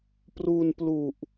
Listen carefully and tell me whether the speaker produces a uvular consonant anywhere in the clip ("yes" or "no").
no